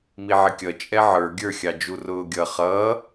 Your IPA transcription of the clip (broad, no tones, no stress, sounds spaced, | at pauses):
m i ʕ ɪ kʲ ʌ t͡ʃʼ ɛ ʕ ə˞ ɡʲ ə˞ xʲ ɑ d͡ʒ u r ʊː ɡʲ ʌ χ ʌː